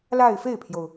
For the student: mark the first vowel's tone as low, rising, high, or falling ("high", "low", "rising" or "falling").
falling